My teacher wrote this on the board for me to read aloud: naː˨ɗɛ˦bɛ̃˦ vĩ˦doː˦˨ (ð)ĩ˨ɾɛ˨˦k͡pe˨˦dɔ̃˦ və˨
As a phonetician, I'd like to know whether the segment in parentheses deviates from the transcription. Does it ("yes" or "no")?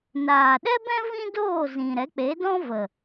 yes